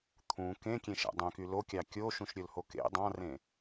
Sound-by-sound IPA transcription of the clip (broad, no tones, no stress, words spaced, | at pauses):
t̪ʰũ kẽkʲẽʃæ̰ dˤœ̃ky lokʲɑ kʲoʃũʃɾʲɵlho kḛ dˤɑ̃rẽ